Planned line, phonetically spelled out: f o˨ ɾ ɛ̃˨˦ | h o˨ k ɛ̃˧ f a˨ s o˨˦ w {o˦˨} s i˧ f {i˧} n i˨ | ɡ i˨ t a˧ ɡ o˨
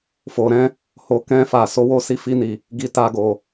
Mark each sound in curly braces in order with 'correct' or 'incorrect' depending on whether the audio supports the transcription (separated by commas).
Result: correct, correct